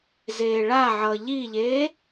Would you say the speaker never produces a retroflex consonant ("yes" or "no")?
no